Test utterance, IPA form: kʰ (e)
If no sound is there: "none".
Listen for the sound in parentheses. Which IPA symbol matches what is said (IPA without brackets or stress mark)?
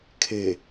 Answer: e